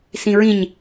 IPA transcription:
sĩɹĩɲ

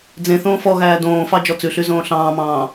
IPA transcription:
d͡zẽθõː fɔɣæː dõːfɑ d͡ʒɔt͡sʉɬy zõːɬɑ̃ːmɑ̃ː

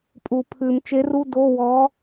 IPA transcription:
pʼu˨˩˦pʰʉ˨˩˦m t͡ʃe˧˥ru˧˥˧ do˧˥˧wɔ˧˥

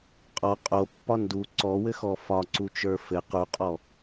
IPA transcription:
qʼɔ qʼopːɒ ndu ǀɔwɘxɔ fɒǀut͡ʃə˞ fɘ quqʼɔ

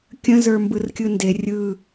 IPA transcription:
kʲə̃ zə˞mbɯrkʲɯnde rʲɯ

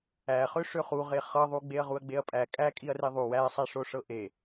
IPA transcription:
æχø ʂøχuʁe χɤðˤu ɡ͡beɐ̯ʁuɐ̯ɡ͡beɐ̯pʼæ kʼækʼiɐ̯ri ðˤu wæsˤæʂoʂɤ ʔe

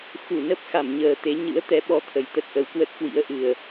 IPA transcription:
xu˧˩ nə˦˥p̚ xa˧˩mɲəː˨˩t̪e˨˦ ɲɨ̰˧˥ə̯t̪ɛ˨˦ɓɔ˨˦ t̪ʰə˨˩jt̪ə˦˥t̚ʔə˨˦wkwə˦˥t̚ kwḭ˧˥ə̯ʔɨ˨˩ə̯

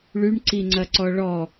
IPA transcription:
ɭyɳǀiŋ͡ǀɐǀɔ ɭɔ

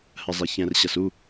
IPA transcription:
hɜzˤɛçɛ̃rɕɐs u

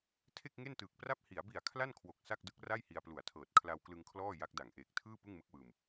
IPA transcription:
tʰe˥˩k̚ŋe˥˩ntɯː˨˩k̚pra˥˩p̚ hi˩˦a̯bi˨˩a̯ kʰla˥˩nkʰwo˨˩k̚ sa˥˩k̚dɯ˦˥k̚ ra˥˩jhi˧a̯plu˨˩a̯tʰɤː˨˩t̚ kʰla˧wklɯ˧ŋkʰlɔː˥˩ ja˦˥k̚da˨˩ŋ ʔeː˨˩k̚tʰɯː˥˩ pɯ˥˩ŋmɯ˦˥k̚wɯː˧m

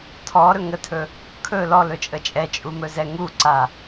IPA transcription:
tʰɔɾɵ ŋətʰɵ | kʰɵ lɔlɵt͡ʃʼə t͡ʃʼɛt͡ʃʼumɵzɛ ŋuǀa

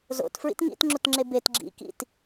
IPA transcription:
zo̰tfɹḭt ŋḭtŋ͡ǁutŋ͡ǁe bet ɡ͡ǁḭ kḭt

